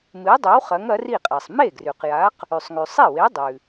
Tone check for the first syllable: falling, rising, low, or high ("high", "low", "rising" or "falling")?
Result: rising